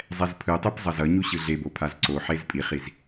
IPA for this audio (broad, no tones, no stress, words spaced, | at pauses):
zˤɛzpʰɯtˤɯp zˤʌzʌɲu ɕɯɮebo pʰazǀoħez pʼiχiz